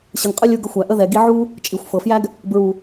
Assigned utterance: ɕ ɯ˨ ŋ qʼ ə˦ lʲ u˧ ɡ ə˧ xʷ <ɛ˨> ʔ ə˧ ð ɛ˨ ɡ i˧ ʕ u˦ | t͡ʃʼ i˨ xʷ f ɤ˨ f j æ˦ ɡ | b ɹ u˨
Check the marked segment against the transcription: incorrect: æ˨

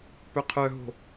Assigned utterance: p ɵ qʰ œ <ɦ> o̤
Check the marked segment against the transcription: correct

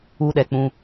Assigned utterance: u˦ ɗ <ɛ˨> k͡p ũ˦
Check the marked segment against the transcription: correct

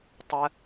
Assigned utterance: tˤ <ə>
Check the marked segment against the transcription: correct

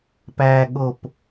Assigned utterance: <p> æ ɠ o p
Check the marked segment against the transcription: correct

